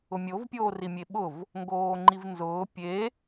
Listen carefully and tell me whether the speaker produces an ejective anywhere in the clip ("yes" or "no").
no